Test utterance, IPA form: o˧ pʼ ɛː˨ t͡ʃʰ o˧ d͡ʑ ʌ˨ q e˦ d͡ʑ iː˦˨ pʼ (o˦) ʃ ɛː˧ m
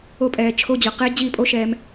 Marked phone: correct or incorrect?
correct